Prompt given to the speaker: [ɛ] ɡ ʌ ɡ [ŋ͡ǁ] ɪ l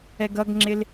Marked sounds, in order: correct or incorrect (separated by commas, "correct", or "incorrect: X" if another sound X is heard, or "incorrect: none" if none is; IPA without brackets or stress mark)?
correct, correct